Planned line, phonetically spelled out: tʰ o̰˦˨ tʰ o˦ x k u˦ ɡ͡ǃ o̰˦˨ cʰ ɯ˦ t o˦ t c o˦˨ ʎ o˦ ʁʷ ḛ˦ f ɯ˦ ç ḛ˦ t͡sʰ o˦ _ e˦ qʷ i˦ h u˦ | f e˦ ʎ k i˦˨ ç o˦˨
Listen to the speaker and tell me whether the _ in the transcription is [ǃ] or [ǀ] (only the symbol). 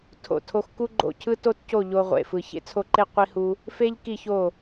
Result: ǃ